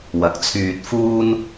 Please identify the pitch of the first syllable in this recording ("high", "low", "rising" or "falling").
rising